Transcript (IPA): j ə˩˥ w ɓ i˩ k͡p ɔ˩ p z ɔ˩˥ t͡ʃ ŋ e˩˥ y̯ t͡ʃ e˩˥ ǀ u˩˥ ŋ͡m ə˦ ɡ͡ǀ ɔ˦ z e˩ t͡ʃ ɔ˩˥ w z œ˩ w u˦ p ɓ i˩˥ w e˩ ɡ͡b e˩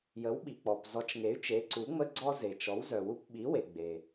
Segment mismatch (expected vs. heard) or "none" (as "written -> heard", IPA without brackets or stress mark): none